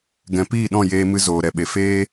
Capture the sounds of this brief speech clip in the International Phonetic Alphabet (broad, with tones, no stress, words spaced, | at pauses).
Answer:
ɡɛ̃˨piː˦˨ɗɔ̃˦˨ jeː˧mɨ˧ zoː˨ɾɛ˨ɓe˨ feː˦